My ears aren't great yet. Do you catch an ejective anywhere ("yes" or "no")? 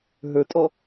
yes